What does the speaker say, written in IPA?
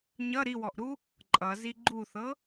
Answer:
ɲ ʌ ɾ i w ɔ ʔ ɾ u | ǃʼ ʌ z i ɡ͡ǃ u θ ɤ

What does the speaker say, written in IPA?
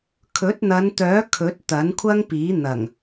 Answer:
kʰ ɵ˨˥ t̚ n̪ ɐ˨˧ n t̪ œː˨˥ kʰ ɵ˨˥ t̚ t̪ ɐ˨˥ n kʷʰ ɐ˥ ŋ p iː˨˥ n̪ ɐ˨˩ ŋ

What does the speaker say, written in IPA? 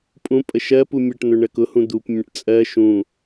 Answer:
pʼ ũ pʼ ə ʃ ɜ p u mʲ ʌ ʈ n̪ ʊ ɳ ɜ k ʊ h ũ d̪ u p mʲ ə̃ ʈ t͡sʼ ɜ ʃ ũ

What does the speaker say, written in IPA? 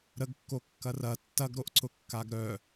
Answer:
ɾ ə ɡ kː o kː ɐ r ɐ tː ɐ ɡ ɾ o ʔ ǀ ʊ kː a ɡ ɾ œ

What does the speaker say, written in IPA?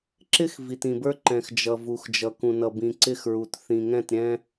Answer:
ǁ ɪ˦ x v i˨ t ĩ˨ b ə˞˦ ǃ ɛ̃˨ x d͡ʒ ʌ˨ v u˨ x d͡ʒ ʌ˨ k ũ˨ n ʌ˨ b ĩ˨ ǀ ɪ˦˨ x ɹ u˨ t θ ĩ˨ ŋ ɛ̃˦˨ t ɾʲ ɛ̃˦

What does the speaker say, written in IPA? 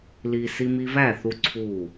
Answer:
l i˦ s i˧ m i˧ v æ˦˨ θ u˧ ǀʰ u˦˨

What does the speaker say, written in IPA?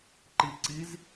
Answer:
ǃ i ǀ i z

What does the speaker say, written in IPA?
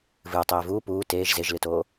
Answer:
v ɨː tˤ eː v uː p uː t eː ʒ z e ʒ l ɨ t oː

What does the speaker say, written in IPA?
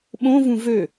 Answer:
ɓ õ v ũ v ø

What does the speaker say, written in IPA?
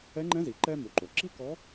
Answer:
ɛ˧˥ ŋ͡ǃ ɛ̃˧˥ z i˩˧ ǃ ɛː˥ m u˩˧ ǃ o˩ ǁ i˥ k ɔ˧˥

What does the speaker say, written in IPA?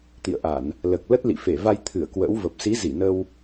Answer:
t̪ ḭ˧˨ ə̯ ʔ a˧˩˨ n | l əː˨˩ k̚ l ə˦˥ t̚ l ḭ˧˨ f e˧˩ v a˧ j t̪ʰ ɨ˧˩ ə̯ k w ə̰ː˧˥ w v ə˨˩ p̚ s i˨˦ z i˧˩ n ə˧ w

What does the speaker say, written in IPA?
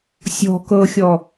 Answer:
sʲ ɔ̤ k ɤ xʲ ɔ

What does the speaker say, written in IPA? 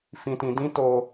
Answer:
f ĩ˧ t ĩ˧ d ĩ˦ t o˦

